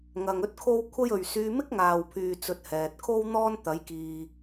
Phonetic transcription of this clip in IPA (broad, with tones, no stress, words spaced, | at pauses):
ŋɐ˨ŋɵ˥t̚kʰo˥w kʷʰɐ˥jɵ˨ɥ syː˧mɪ˥k̚ŋaː˨wpʰyː˨ t͡sɵ˧t̚hɛː˨t̚ kʰo˥wn̪ɔː˥n t̪ɐ˨˥jkiː˨